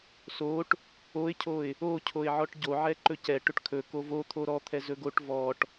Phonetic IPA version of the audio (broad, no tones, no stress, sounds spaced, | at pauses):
s o ʈ | o ɪ̯ cʰ o ɪ̯ | o cʰ o ɪ̯ ʕ ɔ ʈ ɟ o ʕ ɛ ǃ ɵ c ɛ ʈ ɵ ʈ kʰ ɵ k o v o t̪ʰ o ɾ ɔ t̪ʰ ɛ z ɵ ɡ o ʈ v ɔ ʈ